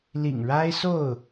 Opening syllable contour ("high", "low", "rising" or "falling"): low